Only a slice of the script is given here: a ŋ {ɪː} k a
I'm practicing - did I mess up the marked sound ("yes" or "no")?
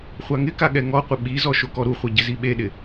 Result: yes